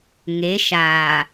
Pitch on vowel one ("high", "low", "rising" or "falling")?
rising